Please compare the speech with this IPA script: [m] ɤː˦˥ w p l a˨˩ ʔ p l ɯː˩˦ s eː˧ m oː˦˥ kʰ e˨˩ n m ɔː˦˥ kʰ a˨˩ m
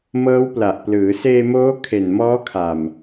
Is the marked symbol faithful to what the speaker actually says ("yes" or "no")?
yes